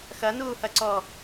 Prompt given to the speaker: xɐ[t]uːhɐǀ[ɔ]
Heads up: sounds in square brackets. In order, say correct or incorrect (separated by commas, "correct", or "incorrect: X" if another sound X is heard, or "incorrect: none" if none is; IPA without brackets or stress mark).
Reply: incorrect: n, correct